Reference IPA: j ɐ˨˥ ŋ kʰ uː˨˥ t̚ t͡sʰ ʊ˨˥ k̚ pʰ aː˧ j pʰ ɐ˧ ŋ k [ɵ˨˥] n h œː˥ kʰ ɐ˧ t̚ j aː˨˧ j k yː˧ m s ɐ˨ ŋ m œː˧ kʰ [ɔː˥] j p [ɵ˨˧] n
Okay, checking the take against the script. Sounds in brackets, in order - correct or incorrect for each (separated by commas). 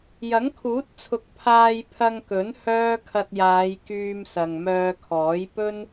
correct, incorrect, incorrect